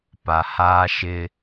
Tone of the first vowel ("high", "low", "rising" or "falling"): low